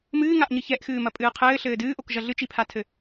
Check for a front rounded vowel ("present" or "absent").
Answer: absent